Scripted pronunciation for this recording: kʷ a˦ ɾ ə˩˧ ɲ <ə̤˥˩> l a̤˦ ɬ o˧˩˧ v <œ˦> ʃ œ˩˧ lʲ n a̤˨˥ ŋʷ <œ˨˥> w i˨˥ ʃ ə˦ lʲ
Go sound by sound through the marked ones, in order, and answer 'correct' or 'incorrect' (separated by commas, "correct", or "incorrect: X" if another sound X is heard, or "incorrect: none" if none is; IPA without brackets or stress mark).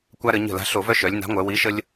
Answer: correct, correct, incorrect: œ˩˧